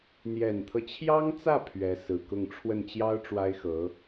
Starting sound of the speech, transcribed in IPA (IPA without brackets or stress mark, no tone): n̪